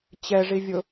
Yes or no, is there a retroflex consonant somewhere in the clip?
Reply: yes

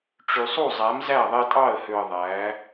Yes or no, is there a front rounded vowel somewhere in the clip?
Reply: yes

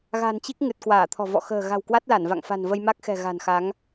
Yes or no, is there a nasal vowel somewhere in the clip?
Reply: no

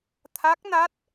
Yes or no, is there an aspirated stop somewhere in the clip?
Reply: yes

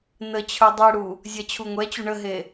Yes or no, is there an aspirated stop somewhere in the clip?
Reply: yes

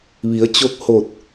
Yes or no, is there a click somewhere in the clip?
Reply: no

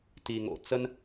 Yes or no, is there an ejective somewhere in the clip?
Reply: no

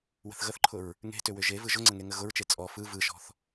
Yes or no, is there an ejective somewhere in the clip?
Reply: yes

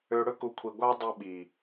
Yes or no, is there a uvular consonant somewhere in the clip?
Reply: no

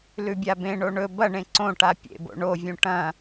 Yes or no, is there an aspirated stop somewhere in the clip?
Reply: no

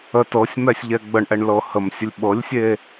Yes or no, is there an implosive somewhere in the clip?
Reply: yes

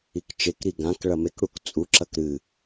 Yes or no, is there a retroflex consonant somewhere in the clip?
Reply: yes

